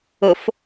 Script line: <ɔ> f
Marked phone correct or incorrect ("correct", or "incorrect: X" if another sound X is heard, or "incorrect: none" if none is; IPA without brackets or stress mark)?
incorrect: ʊ